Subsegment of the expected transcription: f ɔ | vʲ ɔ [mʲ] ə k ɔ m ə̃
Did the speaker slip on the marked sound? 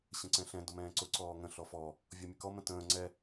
no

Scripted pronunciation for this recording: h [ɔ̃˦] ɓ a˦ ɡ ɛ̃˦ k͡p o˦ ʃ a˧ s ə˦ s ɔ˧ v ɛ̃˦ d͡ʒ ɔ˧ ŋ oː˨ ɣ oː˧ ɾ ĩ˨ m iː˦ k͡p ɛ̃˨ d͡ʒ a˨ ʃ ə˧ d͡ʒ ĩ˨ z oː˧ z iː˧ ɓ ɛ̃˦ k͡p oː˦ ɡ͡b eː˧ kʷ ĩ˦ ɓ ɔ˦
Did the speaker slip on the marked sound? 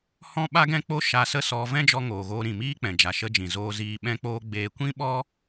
no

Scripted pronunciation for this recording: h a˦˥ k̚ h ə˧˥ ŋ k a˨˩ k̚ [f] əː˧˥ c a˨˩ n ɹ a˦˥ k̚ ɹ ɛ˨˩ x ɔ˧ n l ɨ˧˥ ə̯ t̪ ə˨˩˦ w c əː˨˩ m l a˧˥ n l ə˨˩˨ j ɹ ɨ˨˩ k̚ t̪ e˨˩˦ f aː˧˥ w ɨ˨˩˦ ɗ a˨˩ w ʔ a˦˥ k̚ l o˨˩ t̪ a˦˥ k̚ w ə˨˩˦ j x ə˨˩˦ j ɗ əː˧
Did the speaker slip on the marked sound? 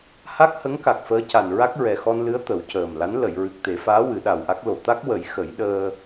no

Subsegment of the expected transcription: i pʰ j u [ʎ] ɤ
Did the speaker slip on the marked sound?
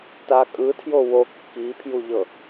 no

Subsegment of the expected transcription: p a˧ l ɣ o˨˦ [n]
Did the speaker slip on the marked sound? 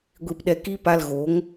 yes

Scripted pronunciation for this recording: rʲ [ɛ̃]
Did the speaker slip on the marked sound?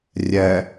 yes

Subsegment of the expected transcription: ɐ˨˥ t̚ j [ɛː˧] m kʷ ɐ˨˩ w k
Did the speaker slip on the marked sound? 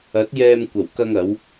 no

